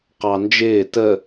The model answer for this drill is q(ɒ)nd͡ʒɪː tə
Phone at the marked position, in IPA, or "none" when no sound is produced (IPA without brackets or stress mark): ɑ